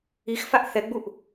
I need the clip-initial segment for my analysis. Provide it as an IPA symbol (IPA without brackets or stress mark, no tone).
i